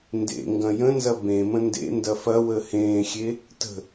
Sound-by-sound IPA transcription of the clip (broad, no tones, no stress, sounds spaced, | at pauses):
n d ḛ ŋ ɡ ɐ̃ j ə̃ n z ɐ b ẽ m ə̃ n d ḛ n d ɐ f ɐ w əː h ẽː xʲ e | t ə̤